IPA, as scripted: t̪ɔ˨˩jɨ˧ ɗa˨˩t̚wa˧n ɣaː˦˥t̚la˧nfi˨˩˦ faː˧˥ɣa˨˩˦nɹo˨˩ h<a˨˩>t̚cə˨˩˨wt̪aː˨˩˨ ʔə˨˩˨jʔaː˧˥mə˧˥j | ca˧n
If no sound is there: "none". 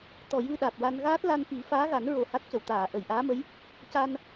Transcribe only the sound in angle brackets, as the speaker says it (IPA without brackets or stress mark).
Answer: a˦˥